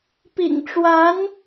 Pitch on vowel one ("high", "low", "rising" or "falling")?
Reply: low